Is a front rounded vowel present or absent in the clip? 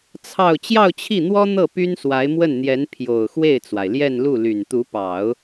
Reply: present